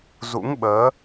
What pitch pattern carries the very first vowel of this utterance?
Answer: rising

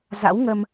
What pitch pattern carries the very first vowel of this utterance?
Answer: rising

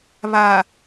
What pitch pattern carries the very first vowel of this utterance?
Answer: low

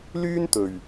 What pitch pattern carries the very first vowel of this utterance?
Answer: high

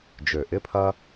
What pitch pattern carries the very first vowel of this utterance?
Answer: low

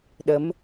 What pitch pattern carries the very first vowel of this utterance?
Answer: rising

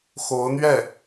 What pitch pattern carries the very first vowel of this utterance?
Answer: rising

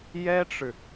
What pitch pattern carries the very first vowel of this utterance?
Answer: high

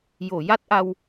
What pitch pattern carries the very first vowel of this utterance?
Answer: low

